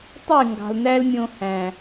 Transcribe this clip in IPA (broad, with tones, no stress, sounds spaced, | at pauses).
tˤ y˦˨ ŋ ɡ ɑ̤˨ l n æ˦ l mʲ õ˧ h æ̃˨